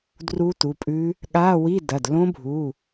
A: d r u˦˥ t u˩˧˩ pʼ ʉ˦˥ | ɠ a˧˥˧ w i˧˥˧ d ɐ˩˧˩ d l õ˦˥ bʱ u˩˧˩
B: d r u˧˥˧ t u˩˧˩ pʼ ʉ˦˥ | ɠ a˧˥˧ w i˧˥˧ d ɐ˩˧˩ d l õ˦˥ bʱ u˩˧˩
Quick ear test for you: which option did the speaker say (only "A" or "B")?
A